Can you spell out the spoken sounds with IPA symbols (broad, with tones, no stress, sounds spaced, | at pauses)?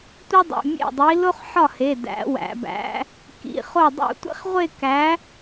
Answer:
tʷ i˥ dˤ ṵ˩˧˩ mʲ ḛ˥˩ dˤ i˨˥ l o˥ χ ħ ɒ˥˩ h e˩˧˩ d æ̰˨˥ w æ̰˩˧ b æ̰˨˥ | k ḭ˩˧˩ χ o˥˩ dˤ ṵ˥˧ tʷ ḛ˥ χ ʁʷ e˥˧ k æ˨˥